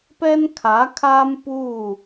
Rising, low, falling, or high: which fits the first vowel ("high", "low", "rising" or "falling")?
high